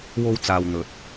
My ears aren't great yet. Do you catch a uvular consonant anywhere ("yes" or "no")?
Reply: no